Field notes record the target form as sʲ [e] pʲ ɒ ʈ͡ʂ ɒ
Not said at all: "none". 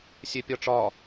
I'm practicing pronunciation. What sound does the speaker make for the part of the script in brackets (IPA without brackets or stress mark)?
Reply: e